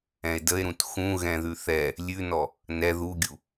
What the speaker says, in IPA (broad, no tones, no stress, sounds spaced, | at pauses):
ɛ̃ e̯ d ə e̯ ɾ ũ t x ũ ɣ ɛ̃ ð ʉ θ ɛ | lʲ ʉ n ɔ | n ɛ ð u ɡʲ u